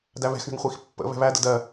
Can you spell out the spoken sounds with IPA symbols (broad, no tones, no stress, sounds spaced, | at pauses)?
d æ β ɛ̤ x ɳ ə̤ ŋ χʷ i x pː ə̰ β ɛ̤ β æ d ə̰ d ɜ